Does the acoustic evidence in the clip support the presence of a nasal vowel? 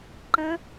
yes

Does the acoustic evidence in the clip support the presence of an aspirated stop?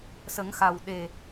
no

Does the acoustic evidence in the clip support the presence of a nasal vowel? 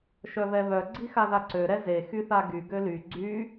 no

